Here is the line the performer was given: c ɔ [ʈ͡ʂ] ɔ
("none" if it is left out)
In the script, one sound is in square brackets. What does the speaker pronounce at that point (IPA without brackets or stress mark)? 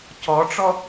ʈ͡ʂ